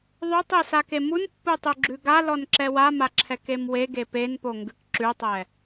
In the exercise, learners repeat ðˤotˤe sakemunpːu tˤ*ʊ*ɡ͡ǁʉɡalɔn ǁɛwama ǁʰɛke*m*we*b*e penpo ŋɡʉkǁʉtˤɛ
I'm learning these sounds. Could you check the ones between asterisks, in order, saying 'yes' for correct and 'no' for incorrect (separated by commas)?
no, yes, no